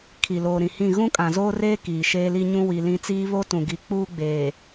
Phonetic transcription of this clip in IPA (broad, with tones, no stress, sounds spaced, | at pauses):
kʰ i˨ l oː˨ ɾ ĩ˨ h ĩ˦˨ ɣ ũ˦ kʼ ã˨ z oː˦ r eː˦ k iː˨ ʃ eː˦ l i˦ ɲ ũ˦ w i˨ l ĩ˦ t͡s iː˦ β o˦ t ũ˨ ɡ i˨ k͡p uː˦ ɡ͡b eː˨